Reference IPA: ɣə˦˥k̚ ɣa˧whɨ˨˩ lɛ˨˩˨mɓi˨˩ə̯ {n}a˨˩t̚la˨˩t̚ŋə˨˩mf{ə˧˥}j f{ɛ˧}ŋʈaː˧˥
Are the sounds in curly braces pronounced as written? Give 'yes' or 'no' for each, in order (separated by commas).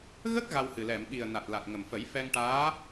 yes, no, yes